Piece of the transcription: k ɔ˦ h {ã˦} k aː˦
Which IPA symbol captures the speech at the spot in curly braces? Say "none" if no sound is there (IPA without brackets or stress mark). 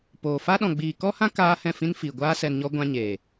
ã˦